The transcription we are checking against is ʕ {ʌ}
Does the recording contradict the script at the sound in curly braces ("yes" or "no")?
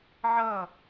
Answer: no